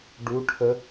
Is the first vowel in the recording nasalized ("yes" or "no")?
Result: no